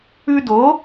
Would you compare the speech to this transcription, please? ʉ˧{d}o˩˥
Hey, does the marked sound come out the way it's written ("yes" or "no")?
yes